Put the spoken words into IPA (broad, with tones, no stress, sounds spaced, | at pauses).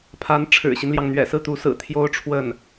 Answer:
pʰ a˧˥ n ʈ͡ʂʰ ɻ̩˨˩ ɕ i˦ n l j ɑ˩ ŋ n̪ ɥ ɛ̰˨˩ s ɹ̩˥˩ t̪ u˧˥ s ɹ̩˨˩ t̪ʰ j o˥ ʊ̯ ʈ͡ʂʰ w ə˥˩ n